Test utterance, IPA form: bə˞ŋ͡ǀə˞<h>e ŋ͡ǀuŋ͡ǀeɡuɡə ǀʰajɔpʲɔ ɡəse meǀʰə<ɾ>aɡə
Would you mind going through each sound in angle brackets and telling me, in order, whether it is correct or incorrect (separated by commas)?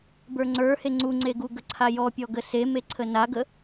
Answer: correct, incorrect